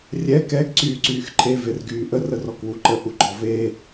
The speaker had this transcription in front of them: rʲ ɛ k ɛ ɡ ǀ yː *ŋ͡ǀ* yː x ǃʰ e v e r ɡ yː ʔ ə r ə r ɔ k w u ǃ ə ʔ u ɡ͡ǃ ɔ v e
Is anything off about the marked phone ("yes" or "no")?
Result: yes